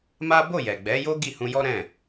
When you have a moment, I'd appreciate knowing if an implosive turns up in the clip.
no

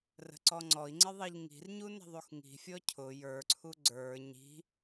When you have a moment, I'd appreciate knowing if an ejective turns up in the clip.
no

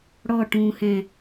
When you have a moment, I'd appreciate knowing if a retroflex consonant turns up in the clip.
yes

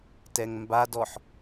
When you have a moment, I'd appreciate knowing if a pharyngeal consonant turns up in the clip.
yes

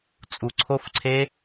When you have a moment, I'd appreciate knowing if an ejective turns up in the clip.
yes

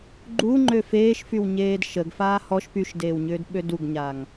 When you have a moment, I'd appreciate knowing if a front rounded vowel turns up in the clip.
yes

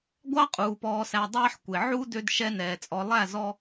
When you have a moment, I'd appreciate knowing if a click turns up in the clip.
no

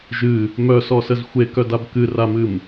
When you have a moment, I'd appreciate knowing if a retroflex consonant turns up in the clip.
no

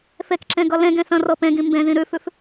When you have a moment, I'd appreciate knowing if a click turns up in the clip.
yes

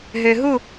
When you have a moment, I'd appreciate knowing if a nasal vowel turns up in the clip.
no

